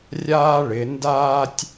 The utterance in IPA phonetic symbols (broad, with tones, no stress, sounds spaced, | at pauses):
rʲ aː˥ ɭ ɪ˩˧ n d aː˥ tʲ